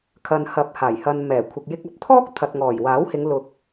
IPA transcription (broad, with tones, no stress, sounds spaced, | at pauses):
kʰ ɐ˧ n h ɐ˧ p̚ h aː˨˩ j h ɐ˨ n m ɛː˨˩ kʷʰ ɪ˨ k̚ j ɪ˧ k̚ ɐ˧ p̚ t̪ʰ ɔː˥ k̚ t̪ʰ ɐ˨ t̚ ŋ ɔː˨˩ j w aː˨˥ w h ɪ˨˧ ŋ l ʊ˧ k̚